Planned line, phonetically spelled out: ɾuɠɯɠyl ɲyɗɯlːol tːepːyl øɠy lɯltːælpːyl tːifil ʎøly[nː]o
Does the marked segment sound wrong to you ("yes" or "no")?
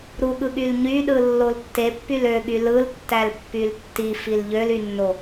no